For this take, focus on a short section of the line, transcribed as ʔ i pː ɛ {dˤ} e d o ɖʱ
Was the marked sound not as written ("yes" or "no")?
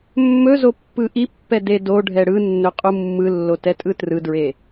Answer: yes